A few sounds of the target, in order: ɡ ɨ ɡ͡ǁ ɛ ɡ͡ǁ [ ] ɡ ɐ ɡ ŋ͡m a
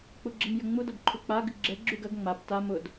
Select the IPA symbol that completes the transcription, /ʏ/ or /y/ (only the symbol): y